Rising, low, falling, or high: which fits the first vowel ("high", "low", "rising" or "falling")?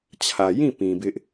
low